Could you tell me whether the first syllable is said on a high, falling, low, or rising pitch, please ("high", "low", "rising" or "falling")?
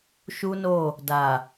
high